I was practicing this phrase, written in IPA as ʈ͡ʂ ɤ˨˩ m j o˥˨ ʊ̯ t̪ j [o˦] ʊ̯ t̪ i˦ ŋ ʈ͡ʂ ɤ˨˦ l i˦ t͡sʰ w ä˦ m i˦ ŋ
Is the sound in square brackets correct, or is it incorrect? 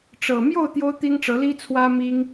correct